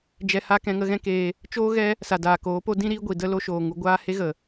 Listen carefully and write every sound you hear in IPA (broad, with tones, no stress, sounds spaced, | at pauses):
d͡ʒ ɛ˧ h a˦ k ɛ̃˧ ŋ ə˦ ɣ ɛ̃˦ k eː˧ | t͡ʃ oː˦ ɣ ɛ˦ | s a˨ d aː˨ k oː˨˦ p o˦ d ĩ˦ ɾ iː˧ ɡʷ i˨ d ə˦ l o˧ ʃ oː˨ ŋ u˧ ɡʷ aː˦ h e˦ ɣ ə˨